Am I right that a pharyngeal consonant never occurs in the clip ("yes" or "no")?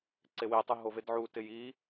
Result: no